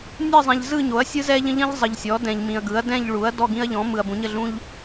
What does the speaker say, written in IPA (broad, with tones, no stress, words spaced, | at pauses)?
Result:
nʲɜ˦˨zˤɛ̃˨ʎ zɯ˦˨ɲo˩˥ɐ̯sʲɯ˦ zɛ˦ʎə̃˦ ʎə̃˦ʎ zˤə˨ʎsʲɔ˩˥ dɛ̃˨ʎmĩ˨ɐ̯ɡɯ˩˥ɐ̯ dɛ̃˦˨ʎɭu˩˥ɐ̯ dɔ˦˨ɡĩ˦ɐ̯ʎɔ̃˩˥ mɯ˨ɐ̯bũ˩˥ɲə˦˨ɮũ˦ʎ